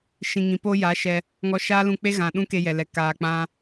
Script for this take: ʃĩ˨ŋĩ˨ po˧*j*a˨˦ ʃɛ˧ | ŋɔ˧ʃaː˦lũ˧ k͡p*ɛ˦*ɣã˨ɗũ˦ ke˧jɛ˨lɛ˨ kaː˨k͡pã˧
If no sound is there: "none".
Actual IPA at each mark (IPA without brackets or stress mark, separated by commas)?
j, e˦